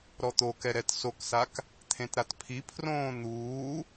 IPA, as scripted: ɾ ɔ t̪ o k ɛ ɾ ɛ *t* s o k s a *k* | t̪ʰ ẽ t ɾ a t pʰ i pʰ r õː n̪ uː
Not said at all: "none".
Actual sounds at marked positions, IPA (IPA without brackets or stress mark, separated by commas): t, k